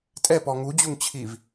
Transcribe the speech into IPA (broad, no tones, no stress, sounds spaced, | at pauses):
tʼ ɛ p ɔ ŋ u d͡ʑ u ŋ t͡ɕʰ i v